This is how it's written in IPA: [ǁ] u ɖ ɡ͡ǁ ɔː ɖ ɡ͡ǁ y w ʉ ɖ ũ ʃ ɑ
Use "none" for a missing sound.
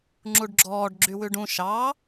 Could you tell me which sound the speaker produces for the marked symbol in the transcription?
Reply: ŋ͡ǁ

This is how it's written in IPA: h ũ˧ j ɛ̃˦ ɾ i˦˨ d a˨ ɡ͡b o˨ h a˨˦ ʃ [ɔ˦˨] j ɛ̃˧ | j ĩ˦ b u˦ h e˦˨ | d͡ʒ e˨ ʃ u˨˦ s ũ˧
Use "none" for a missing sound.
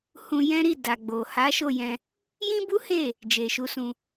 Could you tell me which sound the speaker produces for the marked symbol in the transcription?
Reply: o˦˨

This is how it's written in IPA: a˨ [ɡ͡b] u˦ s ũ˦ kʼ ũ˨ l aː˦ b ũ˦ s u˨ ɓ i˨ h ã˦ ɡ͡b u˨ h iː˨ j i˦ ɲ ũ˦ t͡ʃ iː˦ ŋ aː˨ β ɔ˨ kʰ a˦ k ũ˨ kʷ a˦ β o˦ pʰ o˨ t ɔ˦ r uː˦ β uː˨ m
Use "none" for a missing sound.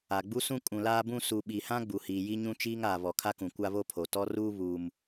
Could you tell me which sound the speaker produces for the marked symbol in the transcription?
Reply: ɡ͡b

